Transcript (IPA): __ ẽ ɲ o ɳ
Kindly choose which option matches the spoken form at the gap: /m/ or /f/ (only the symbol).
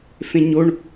f